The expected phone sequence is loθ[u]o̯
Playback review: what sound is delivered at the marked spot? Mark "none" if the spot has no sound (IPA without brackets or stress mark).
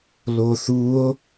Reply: u